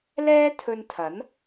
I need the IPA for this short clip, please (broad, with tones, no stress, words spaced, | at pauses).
lɛː˥t̪ʰɵ˧nt̪ʰɐ˨˥n